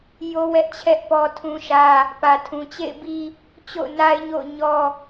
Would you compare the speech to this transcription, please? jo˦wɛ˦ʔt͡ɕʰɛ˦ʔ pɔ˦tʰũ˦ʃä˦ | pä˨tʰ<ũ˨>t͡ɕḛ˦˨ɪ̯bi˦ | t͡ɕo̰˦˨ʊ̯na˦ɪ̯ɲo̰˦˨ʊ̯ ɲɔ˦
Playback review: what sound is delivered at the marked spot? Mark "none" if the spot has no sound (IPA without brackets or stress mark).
ũ˨